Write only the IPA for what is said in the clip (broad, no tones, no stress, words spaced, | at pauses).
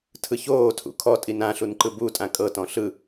tʰɯçoːtʰṵ kʰɔtʼi nã ɬunǃɯbutʼã kʼɤtɔ̃ ɬɯ